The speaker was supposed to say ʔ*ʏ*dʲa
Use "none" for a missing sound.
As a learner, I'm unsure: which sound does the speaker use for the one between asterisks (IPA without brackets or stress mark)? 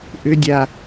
ʏ